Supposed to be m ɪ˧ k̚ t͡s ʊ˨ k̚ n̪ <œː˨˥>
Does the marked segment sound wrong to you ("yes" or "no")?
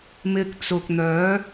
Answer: no